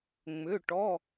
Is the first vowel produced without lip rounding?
no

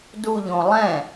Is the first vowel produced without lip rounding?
no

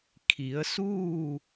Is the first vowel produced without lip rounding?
yes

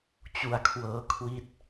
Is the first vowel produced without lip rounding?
no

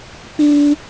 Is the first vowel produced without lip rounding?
yes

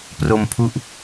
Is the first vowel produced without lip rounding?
no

